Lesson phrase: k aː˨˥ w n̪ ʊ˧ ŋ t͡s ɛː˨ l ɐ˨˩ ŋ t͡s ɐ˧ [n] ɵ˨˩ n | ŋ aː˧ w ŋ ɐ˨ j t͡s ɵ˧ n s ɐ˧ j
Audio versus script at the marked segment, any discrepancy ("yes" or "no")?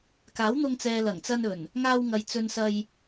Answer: no